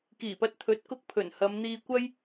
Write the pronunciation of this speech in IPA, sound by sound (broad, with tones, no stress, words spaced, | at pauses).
kiː˨˩pɐ˧t̚t̪ʰɵ˨˥t̚kʊ˧k̚ pʰɵ˨˩nhɐ˨˧mn̪iː˧kʷɐ˥j